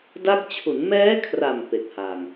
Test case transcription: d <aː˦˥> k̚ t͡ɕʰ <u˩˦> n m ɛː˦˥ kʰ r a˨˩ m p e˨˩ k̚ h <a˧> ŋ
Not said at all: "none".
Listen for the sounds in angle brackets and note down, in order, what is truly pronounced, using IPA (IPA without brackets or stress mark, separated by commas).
a˦˥, u˩˦, a˨˩